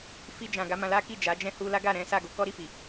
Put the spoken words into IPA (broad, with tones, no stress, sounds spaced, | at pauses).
f i˧ d͡ʒ ã˨ ɡ a˨˦ m ã˧ l a˦ k i˦˨ d͡ʒ a˨˦ d͡ʒ ɛ̃˦ h u˧ l a˦ ɡ a˦˨ ɾ ɛ̃˨˦ s a˦˨ ɡ o˧ k ɔ˦ ɾ i˧ f i˨